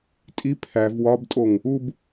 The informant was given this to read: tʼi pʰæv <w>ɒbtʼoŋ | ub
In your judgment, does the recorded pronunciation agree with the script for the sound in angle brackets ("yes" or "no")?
yes